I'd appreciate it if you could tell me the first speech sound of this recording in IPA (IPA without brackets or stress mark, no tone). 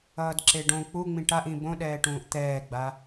ʌː